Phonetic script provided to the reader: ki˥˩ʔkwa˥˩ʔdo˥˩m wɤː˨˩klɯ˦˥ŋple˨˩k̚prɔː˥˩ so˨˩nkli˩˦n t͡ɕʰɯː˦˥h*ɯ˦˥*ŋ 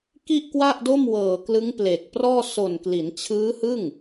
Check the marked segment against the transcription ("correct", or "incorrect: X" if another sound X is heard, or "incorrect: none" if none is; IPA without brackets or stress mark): incorrect: ɯ˥˩